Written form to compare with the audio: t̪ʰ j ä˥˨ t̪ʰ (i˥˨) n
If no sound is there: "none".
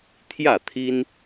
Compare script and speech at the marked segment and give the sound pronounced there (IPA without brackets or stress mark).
i˦